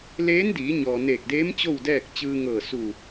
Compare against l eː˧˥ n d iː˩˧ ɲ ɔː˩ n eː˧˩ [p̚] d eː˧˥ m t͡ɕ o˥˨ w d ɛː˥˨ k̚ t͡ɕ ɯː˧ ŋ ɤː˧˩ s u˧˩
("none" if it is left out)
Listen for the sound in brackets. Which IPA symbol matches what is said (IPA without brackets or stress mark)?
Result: k̚